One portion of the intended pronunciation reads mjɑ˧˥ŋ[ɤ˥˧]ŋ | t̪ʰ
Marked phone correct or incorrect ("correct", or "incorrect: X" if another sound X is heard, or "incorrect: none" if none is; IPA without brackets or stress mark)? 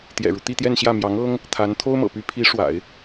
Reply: incorrect: ɤ˥